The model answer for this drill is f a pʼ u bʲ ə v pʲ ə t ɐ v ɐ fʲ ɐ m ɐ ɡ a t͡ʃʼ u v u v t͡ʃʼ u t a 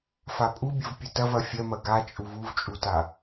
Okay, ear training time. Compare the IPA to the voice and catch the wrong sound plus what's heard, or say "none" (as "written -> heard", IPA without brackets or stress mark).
none